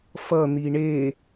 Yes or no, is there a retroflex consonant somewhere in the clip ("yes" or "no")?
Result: yes